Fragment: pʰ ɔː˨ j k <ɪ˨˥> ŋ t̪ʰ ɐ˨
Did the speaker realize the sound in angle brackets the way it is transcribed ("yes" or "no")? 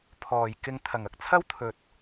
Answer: no